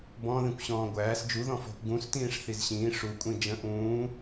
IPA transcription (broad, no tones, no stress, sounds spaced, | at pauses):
b ɔ̃ ð ĩ kʷ ɕ ɔ̃ː ɡʷ æː s d͡ʒ u ð ɔ̃ f ɔ̤ kʷ ɡ ũ s t ĩː ʂ θ i z ɕ ĩː ʂ u kʷʼ ĩ d͡ʒ ə̃ ʔ ũː